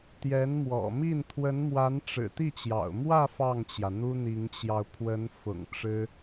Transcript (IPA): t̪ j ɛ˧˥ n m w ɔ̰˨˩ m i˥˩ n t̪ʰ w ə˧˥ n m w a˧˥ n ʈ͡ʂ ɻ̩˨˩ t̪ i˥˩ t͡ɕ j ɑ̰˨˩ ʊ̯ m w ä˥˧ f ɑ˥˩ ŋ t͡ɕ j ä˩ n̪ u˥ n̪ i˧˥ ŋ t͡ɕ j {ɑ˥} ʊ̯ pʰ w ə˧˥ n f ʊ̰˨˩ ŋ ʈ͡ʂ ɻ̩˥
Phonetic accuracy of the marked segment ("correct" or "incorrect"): incorrect